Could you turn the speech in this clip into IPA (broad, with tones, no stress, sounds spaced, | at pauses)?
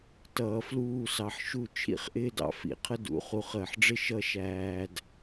t ʌː˧ f l uː˥˧ s ɑ˧ ħ ʃ u˥˧ t͡ʃʰ ḭ˥ χ ʔ ɪː˥ d ɑ̰˧ f ḭ˧˩ qʰ ə˥ d ṵ˩˧ χ u˧ χ əː˧˩ ħ ɖ͡ʐ ɪ˥ ʃ ʌ˥ ʃ æː˧ d